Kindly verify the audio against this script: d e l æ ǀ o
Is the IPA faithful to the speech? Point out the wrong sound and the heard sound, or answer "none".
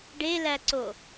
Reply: d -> ɖ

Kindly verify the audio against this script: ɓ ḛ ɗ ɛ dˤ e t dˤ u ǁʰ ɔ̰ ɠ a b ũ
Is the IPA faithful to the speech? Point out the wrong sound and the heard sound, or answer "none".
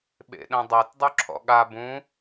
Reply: ɛ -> ɛ̃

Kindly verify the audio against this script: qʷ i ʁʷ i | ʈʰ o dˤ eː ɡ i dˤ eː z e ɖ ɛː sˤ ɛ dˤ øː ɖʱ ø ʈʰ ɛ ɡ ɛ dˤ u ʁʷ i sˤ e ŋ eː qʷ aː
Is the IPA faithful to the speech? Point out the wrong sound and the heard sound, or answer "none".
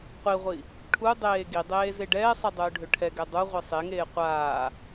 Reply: o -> u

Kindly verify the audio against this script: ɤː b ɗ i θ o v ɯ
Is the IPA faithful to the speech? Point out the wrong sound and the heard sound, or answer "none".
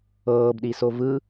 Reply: θ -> s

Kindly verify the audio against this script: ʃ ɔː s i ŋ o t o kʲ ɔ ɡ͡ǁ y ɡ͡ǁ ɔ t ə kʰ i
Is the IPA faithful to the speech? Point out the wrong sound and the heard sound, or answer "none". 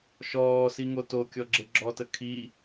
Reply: y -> e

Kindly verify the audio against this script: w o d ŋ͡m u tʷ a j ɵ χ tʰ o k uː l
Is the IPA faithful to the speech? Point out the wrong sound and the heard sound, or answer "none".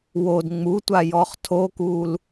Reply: ɵ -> ɔ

